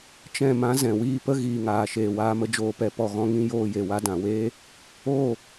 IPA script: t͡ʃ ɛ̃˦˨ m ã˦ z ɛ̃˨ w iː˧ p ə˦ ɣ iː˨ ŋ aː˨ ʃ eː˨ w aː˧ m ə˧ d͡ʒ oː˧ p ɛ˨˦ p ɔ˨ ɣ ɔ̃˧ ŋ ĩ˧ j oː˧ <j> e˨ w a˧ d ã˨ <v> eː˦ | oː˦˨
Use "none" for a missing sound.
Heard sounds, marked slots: j, w

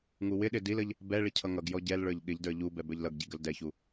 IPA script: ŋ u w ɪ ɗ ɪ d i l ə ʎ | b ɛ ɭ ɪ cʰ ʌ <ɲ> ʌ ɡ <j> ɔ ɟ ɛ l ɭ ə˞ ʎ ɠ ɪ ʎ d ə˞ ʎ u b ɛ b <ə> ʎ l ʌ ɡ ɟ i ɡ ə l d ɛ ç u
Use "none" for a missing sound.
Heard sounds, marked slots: ŋ, j, ə˞

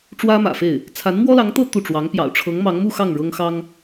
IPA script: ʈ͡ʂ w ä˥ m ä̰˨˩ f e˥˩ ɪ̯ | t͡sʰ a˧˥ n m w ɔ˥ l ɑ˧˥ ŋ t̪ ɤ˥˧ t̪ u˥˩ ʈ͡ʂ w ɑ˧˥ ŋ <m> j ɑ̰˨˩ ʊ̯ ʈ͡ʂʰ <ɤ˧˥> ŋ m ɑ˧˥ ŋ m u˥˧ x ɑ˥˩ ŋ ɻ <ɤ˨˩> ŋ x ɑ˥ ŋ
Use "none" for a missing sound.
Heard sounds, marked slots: p, ɤ˧˥, ɤ˥

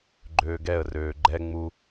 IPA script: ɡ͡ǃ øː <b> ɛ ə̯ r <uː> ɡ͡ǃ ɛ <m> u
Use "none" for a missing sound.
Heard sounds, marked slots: ɡ, øː, ŋ͡m

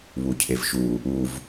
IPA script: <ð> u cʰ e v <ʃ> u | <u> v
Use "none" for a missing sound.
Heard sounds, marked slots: β, ʃ, u

